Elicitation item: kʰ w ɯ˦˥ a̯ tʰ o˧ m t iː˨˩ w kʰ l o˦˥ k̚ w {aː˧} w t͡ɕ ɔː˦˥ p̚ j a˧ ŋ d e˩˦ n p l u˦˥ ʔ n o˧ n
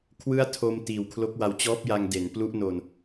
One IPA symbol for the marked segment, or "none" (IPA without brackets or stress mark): a˧